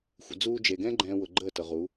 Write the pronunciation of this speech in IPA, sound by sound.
xʷ ə̰˨ d͡z uː˧ d͡ʒ e˨ ɡ ɛ̃˦ ɡ͡ǃ ɛ̃ː˧ w ʊ˨ ɡ͡ǃ əː˦˨ t ɤ˨ ʁ u˨˦

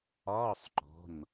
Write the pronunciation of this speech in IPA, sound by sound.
ɒː˧˥˧ sˤ ǃ ɔ̤˩˧˩ n

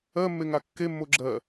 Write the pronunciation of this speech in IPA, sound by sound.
ɜ mː e ŋ a kː e mː o ɡ͡ǁ ɜ

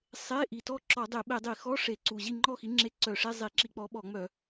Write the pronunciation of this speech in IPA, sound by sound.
sˤ e˧˥˧ ʔ i˨˩ t ɔ˥˨ ǁ ɔ˧˩˧ dˤ e˧˩˧ ɓ e˧˩˧ dˤ i˧˩˧ x ɔ˧˥˧ ʂ e˧˩˧ ǀ u˨˩ ʑ i˥˨ ŋ͡ǃ ɔ˥˨ x i˨˥ ŋ͡ǁ e˧˥˧ ǀ œ˧˩˧ ʂ e˧˥˧ zˤ i˧˩˧ ǁ i˧˩˧ k͡p ɔ˨˥ ɓ ɔ˧˩˧ ŋ͡m œ˧˩˧

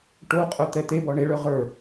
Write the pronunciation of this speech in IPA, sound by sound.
ʈ o qʼ œ t̪ ɛ t̪ e b ɔ ɳ e ɭ œ ʁ ə˞

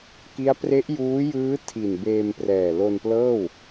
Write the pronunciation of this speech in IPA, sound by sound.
k i˦˥ a̯ p r e˦˥ ʔ j uː˦˥ j ɯː˦˥ tʰ i˨˩ n b eː˧ m p r ɛː˨˩ l o˧ n p l ɤː˥˩ w

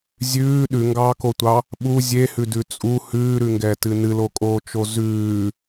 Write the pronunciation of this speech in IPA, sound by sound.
zʲ ʉː ɗ ʉ ŋ ɡ ɑː k o tʷ ɑ | ɓ u zʲ e h ʉ d ʉ t͡sʼ u h ʉː ɾ ʉ ŋ ɡ ɛ t ɨ n ɨ l o kʼ oː t͡ʃ o z ʉː

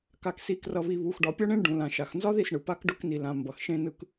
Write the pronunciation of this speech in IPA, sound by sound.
k a˨ k s i˨ k r ʌ˨ β i˨ β u˨ x ɖ ɒ˨ pʲ ɒ˦ ɳ ẽ˦ ɳ ɖ ũ˨ l ã˨ ʃ a˨ x n z ɒ˦ ð i˦˨ s ɳ ɯ˨ p a˦ k ɖ ʊ˦ k n i˨ l ã˨ m b ʌ˨ x ʃ ẽ˦ n ɯ˦ k

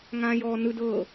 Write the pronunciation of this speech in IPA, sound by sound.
ŋ ãː j ɔː n ɯ d ɤ

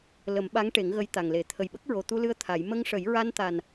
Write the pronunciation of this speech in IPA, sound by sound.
l ə˨˩˦ m ɓ a˧˥ ŋ ʈ e˨˩˦ ŋ ɣ ə˧˥ j t̪ a˨˩ ŋ l e˨˩˦ t̪ʰ ə˨˩ j ɓ ə˦˥ k̚ ɹ o˨˩ t̪ u˧ l ɨ˧ ə̯ t̪ʰ a˨˩˦ j m ə˧ ŋ ʂ ə˨˩˦ j ɹ a˧ n t̪ a˨˩ n

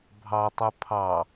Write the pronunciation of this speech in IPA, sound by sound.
bʱ ɑ tˤ ʉ pʰ ɑ

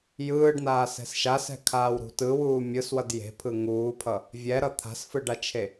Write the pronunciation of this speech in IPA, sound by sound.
j ɯː ɖ n aː s ɛ̤ s ʃ a s ɛ̤ kʰ aː w ɾ ṳ t ɯ w uː mʲ ɯ s w ʌ d j e̤ pʰ ɯ ŋ uː pʰ ʌ | vʲ ɛ ɾ ʌ t̪ʰ a̤ s f ɯ ɖ a t͡ʃʰ e

